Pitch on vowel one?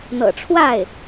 low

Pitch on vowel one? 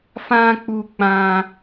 high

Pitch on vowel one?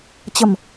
low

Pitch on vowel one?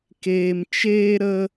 high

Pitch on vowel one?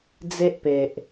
high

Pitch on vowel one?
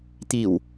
low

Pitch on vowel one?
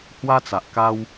high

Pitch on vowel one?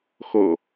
low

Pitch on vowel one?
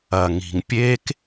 low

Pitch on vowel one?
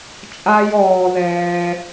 high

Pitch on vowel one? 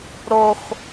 high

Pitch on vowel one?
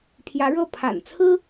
rising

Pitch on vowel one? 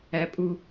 low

